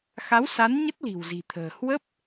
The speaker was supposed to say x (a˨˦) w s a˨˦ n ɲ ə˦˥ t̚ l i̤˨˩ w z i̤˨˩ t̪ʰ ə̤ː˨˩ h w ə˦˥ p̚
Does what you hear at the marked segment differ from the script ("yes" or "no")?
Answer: no